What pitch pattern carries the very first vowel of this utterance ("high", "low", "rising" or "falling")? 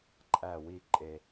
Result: falling